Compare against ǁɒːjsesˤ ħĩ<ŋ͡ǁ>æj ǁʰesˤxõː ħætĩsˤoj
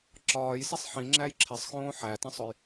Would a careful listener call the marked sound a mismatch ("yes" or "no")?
no